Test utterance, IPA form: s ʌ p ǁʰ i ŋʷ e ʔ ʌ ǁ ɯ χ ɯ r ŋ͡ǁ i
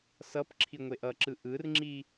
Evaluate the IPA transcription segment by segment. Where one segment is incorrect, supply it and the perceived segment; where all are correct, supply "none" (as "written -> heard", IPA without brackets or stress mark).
χ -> ʔ